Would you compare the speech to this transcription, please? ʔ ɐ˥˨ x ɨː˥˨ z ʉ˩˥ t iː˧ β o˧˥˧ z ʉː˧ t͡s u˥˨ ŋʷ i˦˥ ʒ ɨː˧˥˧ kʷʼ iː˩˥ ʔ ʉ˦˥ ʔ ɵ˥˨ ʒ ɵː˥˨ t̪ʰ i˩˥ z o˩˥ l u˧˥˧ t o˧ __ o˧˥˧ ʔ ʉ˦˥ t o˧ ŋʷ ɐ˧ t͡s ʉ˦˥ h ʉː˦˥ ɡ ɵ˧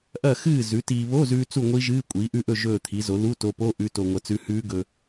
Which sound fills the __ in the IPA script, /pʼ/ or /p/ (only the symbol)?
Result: p